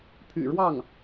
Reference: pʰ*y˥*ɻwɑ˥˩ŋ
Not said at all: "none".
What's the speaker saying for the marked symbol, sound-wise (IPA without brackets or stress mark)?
y̰˨˩